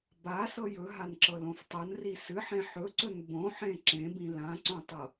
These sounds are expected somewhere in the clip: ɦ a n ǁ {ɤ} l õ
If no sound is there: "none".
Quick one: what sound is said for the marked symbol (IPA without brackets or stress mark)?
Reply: ɤ